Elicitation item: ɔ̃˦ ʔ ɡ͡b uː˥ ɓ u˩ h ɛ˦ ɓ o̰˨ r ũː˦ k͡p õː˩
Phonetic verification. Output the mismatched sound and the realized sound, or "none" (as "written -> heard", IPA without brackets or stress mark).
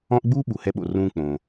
none